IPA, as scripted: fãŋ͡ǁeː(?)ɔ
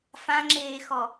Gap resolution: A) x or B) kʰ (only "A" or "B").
A